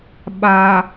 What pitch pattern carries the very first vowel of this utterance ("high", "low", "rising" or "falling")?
low